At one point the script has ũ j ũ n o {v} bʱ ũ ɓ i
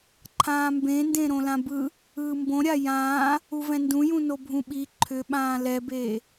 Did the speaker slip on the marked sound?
yes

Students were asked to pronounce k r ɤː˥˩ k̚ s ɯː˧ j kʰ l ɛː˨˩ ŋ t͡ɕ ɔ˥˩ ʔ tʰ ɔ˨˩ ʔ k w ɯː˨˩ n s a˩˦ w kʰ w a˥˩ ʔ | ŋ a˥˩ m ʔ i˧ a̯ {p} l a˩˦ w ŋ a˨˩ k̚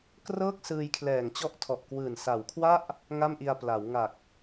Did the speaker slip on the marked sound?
no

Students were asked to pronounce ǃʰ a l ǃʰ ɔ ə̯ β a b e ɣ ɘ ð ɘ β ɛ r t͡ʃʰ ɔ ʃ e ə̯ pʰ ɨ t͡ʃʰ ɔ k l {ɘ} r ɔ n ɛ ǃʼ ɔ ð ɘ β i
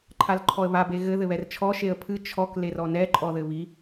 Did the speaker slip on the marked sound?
yes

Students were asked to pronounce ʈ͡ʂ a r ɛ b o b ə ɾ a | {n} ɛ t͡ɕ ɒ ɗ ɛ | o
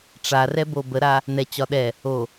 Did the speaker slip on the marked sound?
no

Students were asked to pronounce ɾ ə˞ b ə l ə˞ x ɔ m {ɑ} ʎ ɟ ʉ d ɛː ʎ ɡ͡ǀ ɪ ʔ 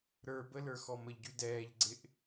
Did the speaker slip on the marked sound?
yes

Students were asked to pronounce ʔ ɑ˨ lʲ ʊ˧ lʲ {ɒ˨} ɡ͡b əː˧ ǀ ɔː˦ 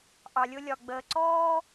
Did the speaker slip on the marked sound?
no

